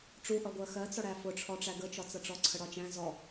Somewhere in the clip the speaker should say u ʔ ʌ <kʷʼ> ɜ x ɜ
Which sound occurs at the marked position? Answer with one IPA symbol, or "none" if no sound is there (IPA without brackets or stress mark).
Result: ɡʷ